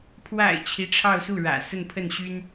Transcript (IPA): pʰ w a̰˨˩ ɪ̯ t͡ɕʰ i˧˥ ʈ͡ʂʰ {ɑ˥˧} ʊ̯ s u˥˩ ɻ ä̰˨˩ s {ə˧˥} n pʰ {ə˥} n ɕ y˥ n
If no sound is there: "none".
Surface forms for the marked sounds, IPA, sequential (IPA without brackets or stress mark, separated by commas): ɑ˥˧, ə˥˧, ə˥˩